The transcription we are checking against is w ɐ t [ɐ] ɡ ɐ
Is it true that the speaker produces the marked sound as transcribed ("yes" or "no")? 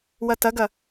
yes